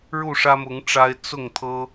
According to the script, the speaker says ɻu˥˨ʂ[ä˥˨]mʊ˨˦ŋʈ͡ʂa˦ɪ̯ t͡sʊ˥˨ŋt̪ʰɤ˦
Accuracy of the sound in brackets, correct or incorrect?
incorrect